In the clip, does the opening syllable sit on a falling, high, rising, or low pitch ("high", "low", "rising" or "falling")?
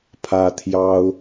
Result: high